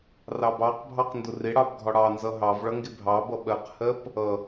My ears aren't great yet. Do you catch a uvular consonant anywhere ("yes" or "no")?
yes